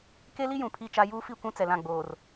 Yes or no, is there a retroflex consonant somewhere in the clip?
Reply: no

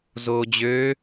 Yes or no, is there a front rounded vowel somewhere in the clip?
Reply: yes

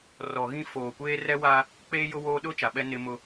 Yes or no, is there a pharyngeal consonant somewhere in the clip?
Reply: no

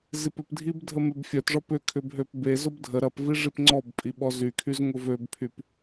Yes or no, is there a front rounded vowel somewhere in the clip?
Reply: yes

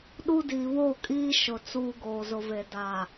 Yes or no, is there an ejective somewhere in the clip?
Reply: yes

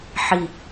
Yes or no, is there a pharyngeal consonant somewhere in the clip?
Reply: yes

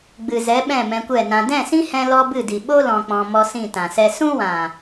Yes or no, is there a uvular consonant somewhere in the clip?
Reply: no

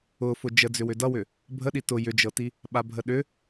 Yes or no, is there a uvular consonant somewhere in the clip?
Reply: no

